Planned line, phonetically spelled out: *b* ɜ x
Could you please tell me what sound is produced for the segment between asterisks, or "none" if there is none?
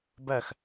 b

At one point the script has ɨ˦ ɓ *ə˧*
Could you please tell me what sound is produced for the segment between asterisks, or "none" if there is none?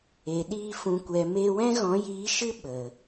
ə˨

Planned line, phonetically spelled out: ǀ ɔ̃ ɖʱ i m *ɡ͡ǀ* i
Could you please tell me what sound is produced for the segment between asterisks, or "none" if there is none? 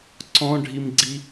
ɡ͡ǀ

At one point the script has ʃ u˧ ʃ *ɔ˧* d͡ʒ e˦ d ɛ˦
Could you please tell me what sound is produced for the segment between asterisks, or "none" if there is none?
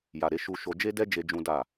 o˧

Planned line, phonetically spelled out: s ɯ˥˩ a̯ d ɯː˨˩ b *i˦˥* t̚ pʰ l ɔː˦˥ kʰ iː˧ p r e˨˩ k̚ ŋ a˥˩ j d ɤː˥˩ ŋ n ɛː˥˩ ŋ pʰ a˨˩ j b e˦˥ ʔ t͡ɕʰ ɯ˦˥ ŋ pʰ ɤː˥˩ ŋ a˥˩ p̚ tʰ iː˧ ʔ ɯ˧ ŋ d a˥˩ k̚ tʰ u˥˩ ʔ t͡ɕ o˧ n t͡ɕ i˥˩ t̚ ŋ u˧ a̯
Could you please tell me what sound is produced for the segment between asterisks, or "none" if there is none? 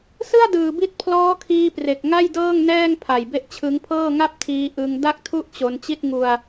i˦˥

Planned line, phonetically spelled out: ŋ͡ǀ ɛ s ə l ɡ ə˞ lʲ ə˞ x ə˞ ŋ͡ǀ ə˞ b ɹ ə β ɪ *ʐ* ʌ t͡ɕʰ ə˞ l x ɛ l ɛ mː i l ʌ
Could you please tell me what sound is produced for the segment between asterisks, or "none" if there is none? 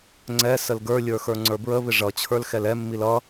ʐ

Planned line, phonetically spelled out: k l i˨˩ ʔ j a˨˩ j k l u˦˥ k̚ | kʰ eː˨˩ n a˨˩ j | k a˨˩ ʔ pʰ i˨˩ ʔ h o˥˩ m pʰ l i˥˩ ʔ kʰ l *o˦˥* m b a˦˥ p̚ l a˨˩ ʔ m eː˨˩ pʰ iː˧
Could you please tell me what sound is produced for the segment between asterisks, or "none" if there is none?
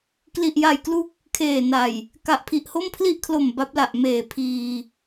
o˨˩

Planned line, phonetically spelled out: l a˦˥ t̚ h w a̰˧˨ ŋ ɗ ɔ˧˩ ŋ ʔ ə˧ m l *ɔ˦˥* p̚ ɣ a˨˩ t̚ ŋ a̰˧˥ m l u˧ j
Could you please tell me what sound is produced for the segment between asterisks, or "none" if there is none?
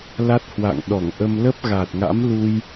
ə˦˥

